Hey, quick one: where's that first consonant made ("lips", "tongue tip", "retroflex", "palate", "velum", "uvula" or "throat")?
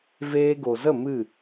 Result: lips